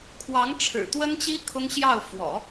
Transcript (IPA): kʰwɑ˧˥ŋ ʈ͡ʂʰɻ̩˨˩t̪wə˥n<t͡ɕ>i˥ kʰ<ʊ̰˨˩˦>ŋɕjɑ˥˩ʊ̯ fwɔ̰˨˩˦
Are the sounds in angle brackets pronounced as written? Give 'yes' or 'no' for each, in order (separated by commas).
yes, no